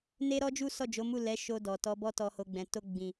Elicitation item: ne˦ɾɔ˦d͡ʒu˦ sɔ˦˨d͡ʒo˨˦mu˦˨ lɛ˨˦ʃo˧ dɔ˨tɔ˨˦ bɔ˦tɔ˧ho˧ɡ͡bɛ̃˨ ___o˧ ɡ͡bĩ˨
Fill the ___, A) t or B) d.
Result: A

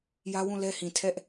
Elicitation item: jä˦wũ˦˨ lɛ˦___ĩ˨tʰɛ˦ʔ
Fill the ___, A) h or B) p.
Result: A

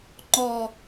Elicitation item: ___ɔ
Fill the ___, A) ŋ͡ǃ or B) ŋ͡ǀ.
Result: A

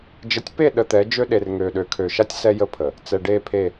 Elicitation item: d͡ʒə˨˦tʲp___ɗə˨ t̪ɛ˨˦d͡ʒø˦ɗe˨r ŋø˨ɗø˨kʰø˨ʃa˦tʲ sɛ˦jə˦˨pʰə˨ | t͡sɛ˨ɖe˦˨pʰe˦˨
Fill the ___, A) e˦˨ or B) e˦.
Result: A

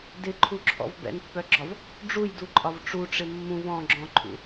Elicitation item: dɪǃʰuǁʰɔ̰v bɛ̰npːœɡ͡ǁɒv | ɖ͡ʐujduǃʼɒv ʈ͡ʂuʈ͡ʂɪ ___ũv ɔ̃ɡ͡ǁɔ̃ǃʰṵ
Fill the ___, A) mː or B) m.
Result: A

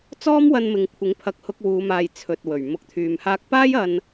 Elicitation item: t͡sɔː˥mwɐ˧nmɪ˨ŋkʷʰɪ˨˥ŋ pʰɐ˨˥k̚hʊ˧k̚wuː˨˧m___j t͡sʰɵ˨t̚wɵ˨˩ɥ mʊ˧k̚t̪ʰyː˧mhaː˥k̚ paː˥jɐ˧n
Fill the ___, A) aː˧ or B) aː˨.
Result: B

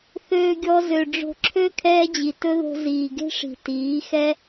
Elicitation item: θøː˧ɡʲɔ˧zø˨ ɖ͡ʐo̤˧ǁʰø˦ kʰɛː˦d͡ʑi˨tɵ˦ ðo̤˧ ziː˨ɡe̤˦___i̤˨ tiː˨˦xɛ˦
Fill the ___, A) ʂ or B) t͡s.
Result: A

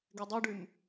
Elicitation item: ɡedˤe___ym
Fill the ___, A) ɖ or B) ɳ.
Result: A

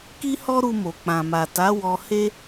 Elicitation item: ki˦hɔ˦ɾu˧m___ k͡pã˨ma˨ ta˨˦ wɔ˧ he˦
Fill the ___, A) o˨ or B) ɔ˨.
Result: A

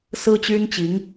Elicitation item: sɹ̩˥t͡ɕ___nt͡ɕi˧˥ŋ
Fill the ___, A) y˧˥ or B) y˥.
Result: B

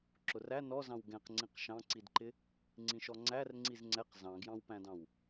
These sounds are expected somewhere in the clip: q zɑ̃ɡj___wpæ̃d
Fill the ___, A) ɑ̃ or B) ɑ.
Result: A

